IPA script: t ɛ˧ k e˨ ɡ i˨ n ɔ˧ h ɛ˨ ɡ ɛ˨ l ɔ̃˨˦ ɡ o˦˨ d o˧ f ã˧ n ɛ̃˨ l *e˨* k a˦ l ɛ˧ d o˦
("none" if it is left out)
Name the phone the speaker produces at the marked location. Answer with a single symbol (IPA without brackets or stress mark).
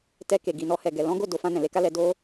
e˧